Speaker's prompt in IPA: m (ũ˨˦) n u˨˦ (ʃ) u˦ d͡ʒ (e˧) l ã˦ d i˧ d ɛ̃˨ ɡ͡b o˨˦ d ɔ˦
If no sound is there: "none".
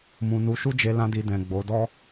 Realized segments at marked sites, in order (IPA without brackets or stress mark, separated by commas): ũ˨, ʃ, e˧